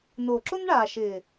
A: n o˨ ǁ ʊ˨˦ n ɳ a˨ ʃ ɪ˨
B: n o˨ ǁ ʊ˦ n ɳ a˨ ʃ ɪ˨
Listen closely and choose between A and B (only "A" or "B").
B